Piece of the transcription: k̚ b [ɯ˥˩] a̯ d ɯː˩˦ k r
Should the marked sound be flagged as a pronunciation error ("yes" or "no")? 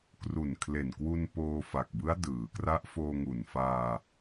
yes